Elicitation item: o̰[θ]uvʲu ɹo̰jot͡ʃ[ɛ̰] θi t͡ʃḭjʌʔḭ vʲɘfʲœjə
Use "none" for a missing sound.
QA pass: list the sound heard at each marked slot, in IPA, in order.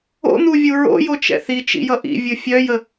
n̪, ɛ̰

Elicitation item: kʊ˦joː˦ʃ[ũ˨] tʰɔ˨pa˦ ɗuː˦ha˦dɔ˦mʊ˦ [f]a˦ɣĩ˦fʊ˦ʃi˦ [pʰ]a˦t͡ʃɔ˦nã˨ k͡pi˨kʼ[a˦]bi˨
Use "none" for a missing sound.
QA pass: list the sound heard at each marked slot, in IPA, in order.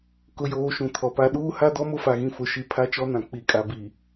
ũ˨, f, pʰ, a˨

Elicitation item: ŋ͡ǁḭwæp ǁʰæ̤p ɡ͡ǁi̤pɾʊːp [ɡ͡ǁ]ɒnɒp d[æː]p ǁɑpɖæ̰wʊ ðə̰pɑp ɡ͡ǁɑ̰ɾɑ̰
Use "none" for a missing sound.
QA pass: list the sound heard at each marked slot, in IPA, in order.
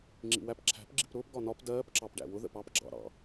ɡ, ɜː

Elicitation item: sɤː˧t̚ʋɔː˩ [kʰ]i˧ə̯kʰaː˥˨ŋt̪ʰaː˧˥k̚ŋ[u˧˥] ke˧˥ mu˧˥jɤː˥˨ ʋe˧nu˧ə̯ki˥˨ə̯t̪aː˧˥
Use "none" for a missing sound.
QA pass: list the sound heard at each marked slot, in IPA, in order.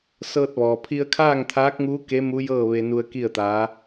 pʰ, uː˧˥

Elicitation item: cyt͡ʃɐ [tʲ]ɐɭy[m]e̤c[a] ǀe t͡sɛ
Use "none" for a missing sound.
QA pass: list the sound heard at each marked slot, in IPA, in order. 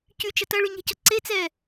t, ɲ, ɐ

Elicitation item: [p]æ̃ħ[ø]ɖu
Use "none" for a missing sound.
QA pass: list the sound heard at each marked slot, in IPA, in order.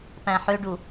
p, ø

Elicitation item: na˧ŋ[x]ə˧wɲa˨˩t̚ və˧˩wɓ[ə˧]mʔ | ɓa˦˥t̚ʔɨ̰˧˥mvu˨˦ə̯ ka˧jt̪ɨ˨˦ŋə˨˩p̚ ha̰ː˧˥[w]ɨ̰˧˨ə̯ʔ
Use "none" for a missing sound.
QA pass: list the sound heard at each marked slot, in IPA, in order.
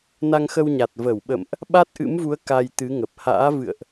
x, ə̰˧˨, v

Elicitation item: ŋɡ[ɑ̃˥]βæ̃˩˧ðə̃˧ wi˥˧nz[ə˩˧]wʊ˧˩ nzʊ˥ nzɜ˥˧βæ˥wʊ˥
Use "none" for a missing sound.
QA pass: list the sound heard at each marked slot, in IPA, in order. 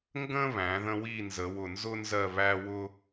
ə̃˥, ə˩˧

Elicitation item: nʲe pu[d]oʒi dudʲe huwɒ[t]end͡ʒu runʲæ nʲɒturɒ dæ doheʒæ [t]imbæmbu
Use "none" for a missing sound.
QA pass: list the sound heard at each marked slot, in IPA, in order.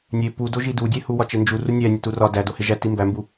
d, t͡ʃ, t

